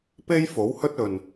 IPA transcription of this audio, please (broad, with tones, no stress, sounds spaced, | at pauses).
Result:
p e˥ j f o˨˥ w h ɵ˥ t̚ ɵ˨ n